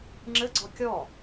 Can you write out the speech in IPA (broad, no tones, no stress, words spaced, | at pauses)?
ŋ͡ǁɘɡ͡ǀɔ kʲɔ